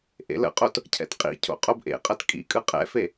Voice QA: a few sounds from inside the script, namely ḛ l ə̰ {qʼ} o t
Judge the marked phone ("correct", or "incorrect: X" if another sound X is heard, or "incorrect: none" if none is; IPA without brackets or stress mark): correct